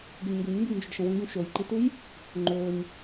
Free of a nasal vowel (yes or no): no